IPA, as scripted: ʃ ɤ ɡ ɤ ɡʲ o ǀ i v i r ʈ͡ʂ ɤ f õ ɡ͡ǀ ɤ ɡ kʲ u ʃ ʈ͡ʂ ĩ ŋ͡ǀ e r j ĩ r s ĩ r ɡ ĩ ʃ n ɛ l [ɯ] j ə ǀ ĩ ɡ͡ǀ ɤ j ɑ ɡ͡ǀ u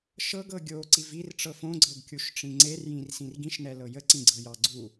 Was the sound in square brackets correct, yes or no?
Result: no